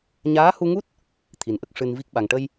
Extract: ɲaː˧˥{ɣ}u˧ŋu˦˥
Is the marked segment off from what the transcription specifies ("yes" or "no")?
yes